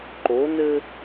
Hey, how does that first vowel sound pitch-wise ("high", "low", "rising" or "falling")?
rising